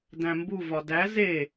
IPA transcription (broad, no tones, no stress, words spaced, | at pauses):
dæ̃mbuvɒ dæ ze